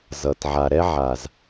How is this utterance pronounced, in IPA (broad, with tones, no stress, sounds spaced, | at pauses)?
z ʌ˨ t ʕ a˨ ɾ ɛ˦ ʕ a˨ z